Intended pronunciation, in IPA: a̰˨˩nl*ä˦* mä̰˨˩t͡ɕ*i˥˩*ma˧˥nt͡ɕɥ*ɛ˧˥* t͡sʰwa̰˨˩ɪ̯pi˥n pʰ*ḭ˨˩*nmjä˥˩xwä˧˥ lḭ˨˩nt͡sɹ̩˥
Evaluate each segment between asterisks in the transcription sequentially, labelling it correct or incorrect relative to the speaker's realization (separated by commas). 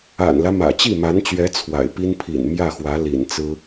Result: correct, correct, correct, correct